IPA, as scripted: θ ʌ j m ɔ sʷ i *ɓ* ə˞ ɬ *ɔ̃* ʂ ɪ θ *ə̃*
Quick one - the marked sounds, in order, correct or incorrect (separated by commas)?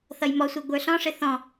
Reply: incorrect, correct, incorrect